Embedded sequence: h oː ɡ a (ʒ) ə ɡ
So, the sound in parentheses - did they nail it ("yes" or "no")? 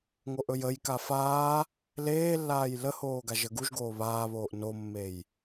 yes